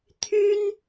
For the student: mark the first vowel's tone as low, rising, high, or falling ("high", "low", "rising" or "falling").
high